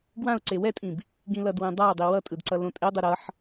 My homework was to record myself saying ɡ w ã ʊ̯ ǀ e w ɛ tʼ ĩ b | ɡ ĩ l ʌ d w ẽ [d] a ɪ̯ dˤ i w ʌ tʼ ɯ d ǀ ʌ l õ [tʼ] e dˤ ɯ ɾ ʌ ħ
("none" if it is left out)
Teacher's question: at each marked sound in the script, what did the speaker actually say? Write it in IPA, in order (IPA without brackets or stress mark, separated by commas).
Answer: dˤ, tʼ